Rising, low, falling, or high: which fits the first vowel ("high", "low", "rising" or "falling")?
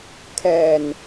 low